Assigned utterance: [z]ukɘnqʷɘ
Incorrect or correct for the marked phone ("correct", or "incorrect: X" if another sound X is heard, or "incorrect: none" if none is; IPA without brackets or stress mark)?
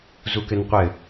correct